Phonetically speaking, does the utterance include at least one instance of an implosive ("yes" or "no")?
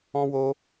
no